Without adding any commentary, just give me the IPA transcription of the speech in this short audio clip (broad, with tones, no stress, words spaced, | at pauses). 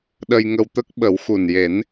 ɗə˧jŋə˧wt̪ə˦˥k̚ ɓə˨˩˦wxu˨˩nje˨˩˦n